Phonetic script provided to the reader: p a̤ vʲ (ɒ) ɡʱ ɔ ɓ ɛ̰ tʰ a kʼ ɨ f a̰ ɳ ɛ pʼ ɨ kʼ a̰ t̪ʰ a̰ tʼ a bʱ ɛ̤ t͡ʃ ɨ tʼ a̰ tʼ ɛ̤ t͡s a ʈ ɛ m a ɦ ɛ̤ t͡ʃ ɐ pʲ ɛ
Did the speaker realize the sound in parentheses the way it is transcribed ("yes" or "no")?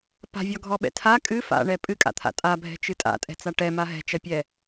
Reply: yes